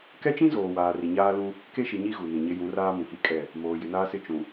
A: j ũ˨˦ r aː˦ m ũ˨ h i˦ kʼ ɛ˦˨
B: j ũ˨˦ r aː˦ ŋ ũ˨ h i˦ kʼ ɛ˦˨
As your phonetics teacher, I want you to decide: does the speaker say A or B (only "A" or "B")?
A